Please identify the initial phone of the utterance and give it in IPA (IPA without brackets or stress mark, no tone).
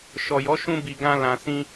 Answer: ʃ